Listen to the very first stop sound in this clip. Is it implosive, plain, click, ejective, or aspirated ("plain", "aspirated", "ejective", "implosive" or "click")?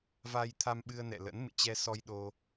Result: aspirated